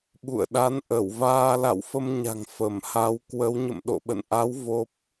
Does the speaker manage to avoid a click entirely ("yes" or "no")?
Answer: yes